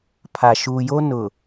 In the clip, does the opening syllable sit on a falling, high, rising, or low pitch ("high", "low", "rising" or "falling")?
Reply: low